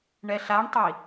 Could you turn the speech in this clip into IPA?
ɳɛɬaɳtˤi

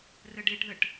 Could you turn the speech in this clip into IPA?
rəɖeʈðəʈ

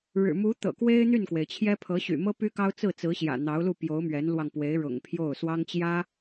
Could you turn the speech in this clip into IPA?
ɻɻ̩˨˩ mu˧˥ t̪ɤ̰˨˩kwe˥ɪ̯ n̪y˥˩nkwe˩ɪ̯t͡ɕʰjɛ˥ pʰɤ˧˥ɕy̰˨˩mɤ˥ py˥kɑ˥ʊ̯ t͡sɹ̩˥˩t͡sɹ̩˧˥ɕjä̰˨˩ n̪ɑ˧˥ʊ̯lu˥˩pjo˧˥ʊ̯ mɥɛ˧˥nlwɑ˧ŋpwe˧˥ɪ̯ɻʊ̰˨˩ŋ pʰjo˥˩ʊ̯ swɑ˥ŋt͡ɕjä˥

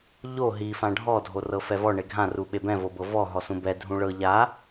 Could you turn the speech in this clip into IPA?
ʎo ɦi fãɖʱɔ dʱorɤfɛvɔ ɳeɡʱã ruɓebɛ̃ vobɤvɔ ɦɔsũbɛ dʱũɭɤ ʎa

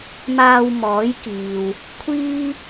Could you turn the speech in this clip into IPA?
maː˧wmɔː˨˥j kiː˨w | kʷʰiː˥

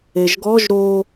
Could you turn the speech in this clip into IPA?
eʒɡɔʒ ɾo

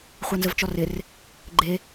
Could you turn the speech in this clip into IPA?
χʷanzəvt͡ʃɔrɪr | ɡ͡ǃe

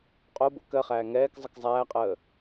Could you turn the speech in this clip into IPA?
qʼobo̰ kɜχæː ŋɛːk zˤəkzˤæːqʼəː

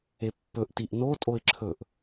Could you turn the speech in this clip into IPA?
epːɵʔ tiʔno tʼoɪ̯ǁʰɵʔ

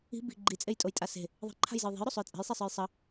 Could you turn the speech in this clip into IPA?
i̤ bi̤ ɡ͡ǃit͡sʼejtʼojtʼa se̤ | ðˤi̤ǃʰa̤jzəj ðˤe̤jɾosˤoj t͡sʼe̤jsˤisˤə˞j sˤə

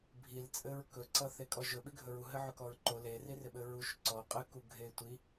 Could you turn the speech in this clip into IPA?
bʱil t͡sʼɘɹkɵǀʌθe kʼɔʒɵ ɓiɡʱɵɹu ɦɘʕɵkɔɹǃo lerirɪɓɘ ɹuʃ ǀɔ qʼɘku ɡʱetʷi

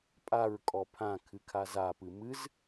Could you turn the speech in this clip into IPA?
pʼaɹkʼɔ pʰãkʰɨkʰa zapɨ mɨz

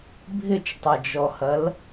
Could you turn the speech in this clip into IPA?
bʱɪt͡ʃtˤɐd͡ʒɔhɐl

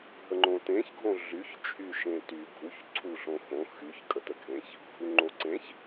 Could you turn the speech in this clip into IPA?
ɦəŋ͡ǃõtẽç ɡʱõɮyç t͡ʃʼyʃẽty ɡʱuç ǀʰuɬõxõ xyç kʼətəɡʱẽç | ɡʱuŋ͡ǃoǀẽç

